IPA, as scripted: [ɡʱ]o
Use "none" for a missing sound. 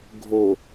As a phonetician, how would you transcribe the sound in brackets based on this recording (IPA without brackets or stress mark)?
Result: ɡʱ